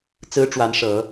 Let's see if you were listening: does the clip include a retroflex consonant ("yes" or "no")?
yes